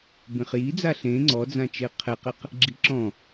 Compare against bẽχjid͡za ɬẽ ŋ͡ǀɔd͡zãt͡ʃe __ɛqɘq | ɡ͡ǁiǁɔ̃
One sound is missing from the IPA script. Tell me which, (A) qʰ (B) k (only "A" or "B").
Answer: A